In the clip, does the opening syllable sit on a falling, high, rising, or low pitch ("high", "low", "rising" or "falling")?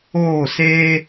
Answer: falling